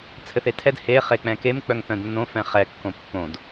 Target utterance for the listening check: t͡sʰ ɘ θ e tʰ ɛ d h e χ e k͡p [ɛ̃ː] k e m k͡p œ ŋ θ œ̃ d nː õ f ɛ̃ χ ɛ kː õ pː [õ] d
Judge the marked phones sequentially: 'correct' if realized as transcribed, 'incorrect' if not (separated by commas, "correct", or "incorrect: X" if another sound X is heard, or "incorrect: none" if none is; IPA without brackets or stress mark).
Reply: incorrect: ɛ̃, correct